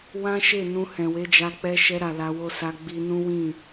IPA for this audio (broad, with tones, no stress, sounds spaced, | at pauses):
w ã˦ ʃ e˦˨ n ũ˧ h ɛ̃˨ w e˨˦ d͡ʒ a˧ k͡p ɛ˧ ʃ ɛ˧ ɾ a˨ l a˧ w o˦ s a˧ ɡ͡b i˧ n ũ˦ w ĩ˦˨